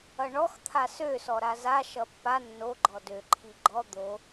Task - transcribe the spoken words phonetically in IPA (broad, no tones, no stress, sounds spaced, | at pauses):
ʌ ɳ ɔ x t̪ʰ a s ø s ɔ ɾ a z a ʃ ʌ pː a nː o ɡ͡ǃ ɔ d ø ǃʰ i ɡ͡ǃ ɔ d̪ o